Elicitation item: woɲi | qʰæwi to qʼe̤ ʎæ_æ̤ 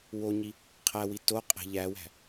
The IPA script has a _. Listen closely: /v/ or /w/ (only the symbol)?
w